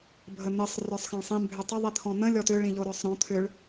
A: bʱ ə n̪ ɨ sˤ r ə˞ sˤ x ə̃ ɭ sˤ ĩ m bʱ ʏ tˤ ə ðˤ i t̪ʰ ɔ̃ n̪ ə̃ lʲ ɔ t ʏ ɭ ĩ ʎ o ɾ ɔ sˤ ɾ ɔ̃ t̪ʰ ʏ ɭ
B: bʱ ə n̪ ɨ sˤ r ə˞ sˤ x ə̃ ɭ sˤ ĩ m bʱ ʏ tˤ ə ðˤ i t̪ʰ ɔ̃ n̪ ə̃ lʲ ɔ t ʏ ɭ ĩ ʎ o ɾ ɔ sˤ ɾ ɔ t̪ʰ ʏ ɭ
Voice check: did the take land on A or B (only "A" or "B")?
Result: A